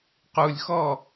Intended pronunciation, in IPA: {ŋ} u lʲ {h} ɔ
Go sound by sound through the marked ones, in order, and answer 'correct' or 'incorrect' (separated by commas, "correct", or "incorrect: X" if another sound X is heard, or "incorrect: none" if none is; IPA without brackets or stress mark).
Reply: incorrect: q, incorrect: x